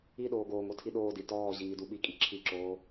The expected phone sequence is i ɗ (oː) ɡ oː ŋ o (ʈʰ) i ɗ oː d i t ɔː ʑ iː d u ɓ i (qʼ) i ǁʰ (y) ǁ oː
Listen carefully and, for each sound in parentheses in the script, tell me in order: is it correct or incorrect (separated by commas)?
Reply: correct, incorrect, incorrect, incorrect